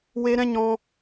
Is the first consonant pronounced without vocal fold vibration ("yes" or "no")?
no